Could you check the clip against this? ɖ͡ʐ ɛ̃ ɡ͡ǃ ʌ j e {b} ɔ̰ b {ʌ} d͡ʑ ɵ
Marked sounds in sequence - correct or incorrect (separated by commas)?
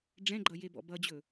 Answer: correct, correct